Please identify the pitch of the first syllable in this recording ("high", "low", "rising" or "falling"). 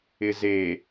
low